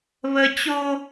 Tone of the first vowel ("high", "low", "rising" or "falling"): high